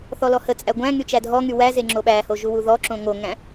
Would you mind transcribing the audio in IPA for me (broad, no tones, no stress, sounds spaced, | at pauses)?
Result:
θ ɔ l ɔ h ə t͡sʼ æ ɡʷ æ̃ ŋ y t͡ʃ æ dʱ ɔ ŋ y w æ z e ŋ͡ǁ o ɓ æ h o ʒ u w u ð ɔ ǁ õ ŋ o ŋ æ̃